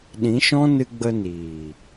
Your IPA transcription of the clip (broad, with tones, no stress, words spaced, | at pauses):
ɗĩ˨˦ʃɔ̃˦ nɨ˧ɡ͡bə˧niː˨